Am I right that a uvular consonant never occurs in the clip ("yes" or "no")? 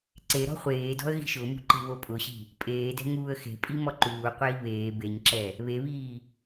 no